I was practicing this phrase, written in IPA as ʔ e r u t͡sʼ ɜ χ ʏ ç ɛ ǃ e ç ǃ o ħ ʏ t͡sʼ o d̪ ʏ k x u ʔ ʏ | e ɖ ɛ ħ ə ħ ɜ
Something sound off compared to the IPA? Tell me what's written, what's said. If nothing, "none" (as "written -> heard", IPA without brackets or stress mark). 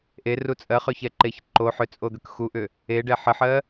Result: none